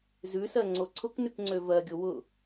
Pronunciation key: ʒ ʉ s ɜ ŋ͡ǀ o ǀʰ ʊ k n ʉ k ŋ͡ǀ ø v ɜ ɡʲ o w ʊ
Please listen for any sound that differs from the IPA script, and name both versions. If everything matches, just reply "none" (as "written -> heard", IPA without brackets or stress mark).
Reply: ʒ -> z